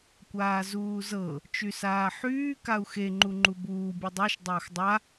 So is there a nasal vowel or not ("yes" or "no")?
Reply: no